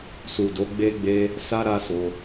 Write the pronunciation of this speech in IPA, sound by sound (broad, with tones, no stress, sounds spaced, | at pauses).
s u˨ d o˨˦ ɡ͡b e˧ ɡ͡b e˧ | s a˦ ɾ a˦ s o˧